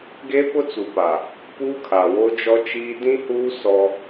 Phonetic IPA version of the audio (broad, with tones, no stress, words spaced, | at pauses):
ɡe˦pʊ˦t͡su˨pa˨ | puː˦kʰa˨ wo˦ d͡ʒɔ˦t͡ʃiː˦ dĩ˦huː˦ sɔ˦